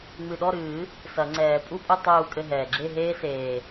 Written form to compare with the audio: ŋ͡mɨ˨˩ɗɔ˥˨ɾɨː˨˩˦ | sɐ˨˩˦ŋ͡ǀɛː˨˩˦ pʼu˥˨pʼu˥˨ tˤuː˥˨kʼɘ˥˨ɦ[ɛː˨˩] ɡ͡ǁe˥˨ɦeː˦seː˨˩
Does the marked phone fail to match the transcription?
no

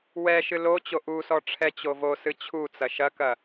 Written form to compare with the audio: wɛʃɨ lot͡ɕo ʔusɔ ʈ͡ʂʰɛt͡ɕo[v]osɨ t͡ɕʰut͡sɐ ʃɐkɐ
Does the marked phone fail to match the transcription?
no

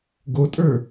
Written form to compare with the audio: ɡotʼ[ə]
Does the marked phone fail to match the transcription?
yes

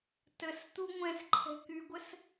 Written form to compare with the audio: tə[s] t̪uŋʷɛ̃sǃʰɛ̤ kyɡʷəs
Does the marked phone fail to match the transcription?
no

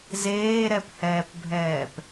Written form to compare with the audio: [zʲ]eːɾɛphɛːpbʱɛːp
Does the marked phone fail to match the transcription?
yes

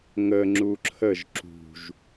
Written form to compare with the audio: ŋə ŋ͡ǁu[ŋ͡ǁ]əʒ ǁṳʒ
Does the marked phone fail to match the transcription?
yes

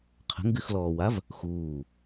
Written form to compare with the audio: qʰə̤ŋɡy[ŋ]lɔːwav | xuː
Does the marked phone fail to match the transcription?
yes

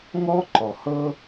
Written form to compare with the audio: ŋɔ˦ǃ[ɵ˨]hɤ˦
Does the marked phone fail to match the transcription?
yes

